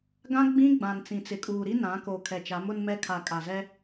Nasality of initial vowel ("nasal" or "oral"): nasal